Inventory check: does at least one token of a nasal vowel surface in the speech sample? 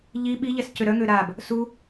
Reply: no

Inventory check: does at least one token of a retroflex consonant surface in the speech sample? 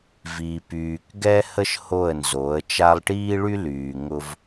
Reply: yes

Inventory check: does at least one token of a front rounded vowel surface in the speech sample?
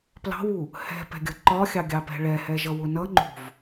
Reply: no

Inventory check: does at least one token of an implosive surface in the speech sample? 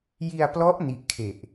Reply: no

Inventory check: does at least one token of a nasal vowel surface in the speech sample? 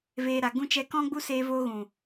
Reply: yes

